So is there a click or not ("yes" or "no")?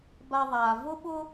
no